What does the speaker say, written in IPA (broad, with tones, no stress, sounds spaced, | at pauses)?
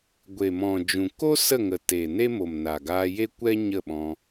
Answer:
ɡʷ e˨ m ɔ̃˨ d͡ʒ ũ˨ k o˦ s ə˦˨ ŋ ə˨ t e˨ n e˦ m o˨ m n a˨ ɡ aː˧ j e˦ kʷ ɛ˦ ɲ ə˦˨ ɓ ɔ̃˧